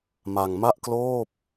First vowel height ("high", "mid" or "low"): low